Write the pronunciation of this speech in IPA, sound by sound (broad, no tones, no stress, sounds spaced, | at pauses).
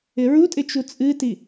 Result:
ɪ ɹ u tʼ ɪ t͡ʃ u t͡sʼ ɨ t i